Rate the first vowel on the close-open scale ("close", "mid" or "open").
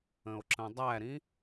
mid